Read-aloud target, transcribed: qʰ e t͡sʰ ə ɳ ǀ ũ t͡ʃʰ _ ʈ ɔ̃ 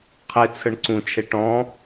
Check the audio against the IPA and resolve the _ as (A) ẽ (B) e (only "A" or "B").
B